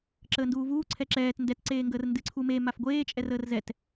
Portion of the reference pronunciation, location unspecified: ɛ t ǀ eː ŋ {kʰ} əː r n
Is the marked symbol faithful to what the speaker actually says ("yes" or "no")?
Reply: no